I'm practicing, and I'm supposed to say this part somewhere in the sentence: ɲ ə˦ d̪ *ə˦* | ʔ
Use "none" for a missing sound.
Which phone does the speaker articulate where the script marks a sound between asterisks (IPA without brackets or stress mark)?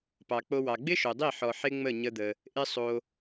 ə˧